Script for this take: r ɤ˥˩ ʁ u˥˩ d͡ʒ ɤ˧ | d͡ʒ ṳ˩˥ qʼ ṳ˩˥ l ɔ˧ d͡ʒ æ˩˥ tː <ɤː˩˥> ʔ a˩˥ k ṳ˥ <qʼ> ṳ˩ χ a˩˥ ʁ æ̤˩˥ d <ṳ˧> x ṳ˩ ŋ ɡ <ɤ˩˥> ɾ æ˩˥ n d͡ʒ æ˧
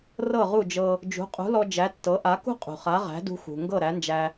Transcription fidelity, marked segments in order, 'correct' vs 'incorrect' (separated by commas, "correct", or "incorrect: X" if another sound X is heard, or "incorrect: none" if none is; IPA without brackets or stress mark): incorrect: ɤ˩˥, correct, correct, incorrect: ɤ˥˩